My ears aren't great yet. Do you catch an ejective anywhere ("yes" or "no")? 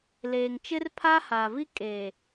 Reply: yes